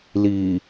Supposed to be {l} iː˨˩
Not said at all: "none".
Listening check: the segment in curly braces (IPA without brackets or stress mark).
l